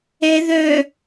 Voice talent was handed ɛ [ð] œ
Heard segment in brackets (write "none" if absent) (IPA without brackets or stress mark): ð